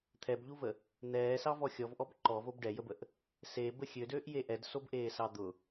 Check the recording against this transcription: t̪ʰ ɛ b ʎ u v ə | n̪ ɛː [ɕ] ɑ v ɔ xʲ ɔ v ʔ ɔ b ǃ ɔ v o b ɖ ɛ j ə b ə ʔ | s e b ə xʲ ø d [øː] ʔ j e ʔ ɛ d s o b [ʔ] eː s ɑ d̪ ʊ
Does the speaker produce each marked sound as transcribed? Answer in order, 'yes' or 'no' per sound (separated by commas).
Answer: no, yes, yes